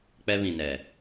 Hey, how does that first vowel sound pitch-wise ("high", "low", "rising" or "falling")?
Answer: high